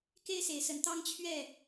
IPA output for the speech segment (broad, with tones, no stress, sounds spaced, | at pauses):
k e˦ ɪ̯ s e˨˦ ɪ̯ s ə˨˦ n t̪ ɑ˦ ŋ t͡ɕʰ ɥ ɛ˥˨